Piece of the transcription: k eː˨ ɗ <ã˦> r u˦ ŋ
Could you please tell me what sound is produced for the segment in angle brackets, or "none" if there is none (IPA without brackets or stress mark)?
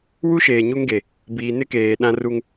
ã˦